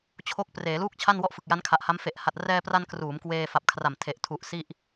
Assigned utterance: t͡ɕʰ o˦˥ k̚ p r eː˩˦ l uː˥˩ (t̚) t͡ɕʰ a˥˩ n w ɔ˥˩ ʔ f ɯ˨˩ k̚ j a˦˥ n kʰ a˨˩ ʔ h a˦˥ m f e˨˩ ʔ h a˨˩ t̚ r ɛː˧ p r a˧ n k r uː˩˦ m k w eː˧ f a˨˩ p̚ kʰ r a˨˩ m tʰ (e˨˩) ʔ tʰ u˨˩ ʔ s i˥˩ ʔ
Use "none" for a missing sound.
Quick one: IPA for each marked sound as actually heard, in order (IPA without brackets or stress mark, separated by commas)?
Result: k̚, e˨˩